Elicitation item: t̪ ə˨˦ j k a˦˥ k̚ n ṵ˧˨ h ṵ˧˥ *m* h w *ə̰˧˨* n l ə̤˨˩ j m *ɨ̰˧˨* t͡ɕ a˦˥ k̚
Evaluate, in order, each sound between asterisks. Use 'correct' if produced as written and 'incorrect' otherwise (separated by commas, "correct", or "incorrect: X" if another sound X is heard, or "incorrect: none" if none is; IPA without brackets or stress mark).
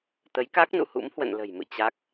correct, correct, correct